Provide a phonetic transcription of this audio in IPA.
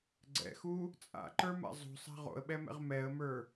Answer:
ɡ͡ǀ ɛ̰ x u | t͡sʼ a̰ ǃ ə˞ m a̰ zˤ ṳ sˤ a̤ ʁ o̰ ə̯ ɓ ɛ m ɛ̰ ʁ m ɛ ə̯ m ə˞

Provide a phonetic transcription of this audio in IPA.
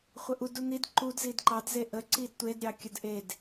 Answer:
χʷ ə ʔ u d u n̪ i d ǃ u d z i d ǃ ɑ d z e ʔ ə ǀ i d tʷ e d ɾʲ ɑ kʲ ə d ʔ e d

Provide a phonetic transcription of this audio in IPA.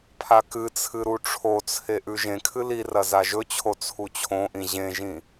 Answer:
pʰ a k ɨ t͡sʰ ɨ ɾ u ʈ͡ʂʰ o t͡sʰ e ʔ ʉ ʒ ẽ kʰ ɨ l i r ɐ z a ʒ ɵ t͡ɕʰ o t͡sʰ u t͡ɕʰ õ ʔ ĩ ʑ ẽ ʒ ĩ

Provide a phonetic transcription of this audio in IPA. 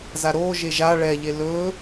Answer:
z a ɾ oː ʒ e ʒ a ɭ ɛ ʎ e l ɵː

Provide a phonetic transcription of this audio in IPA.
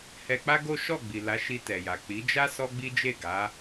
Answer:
h ɛ˧ k͡p a˦ ɡ o˦ ʃ ɔ˦˨ ɡ͡b i˨ l a˨˦ ʃ i˧ t ɛ˨ j a˨ k͡p i˨˦ d͡ʒ a˦ s ɔ˦ ɡ͡b i˦ d͡ʒ e˦˨ ɡ a˨˦

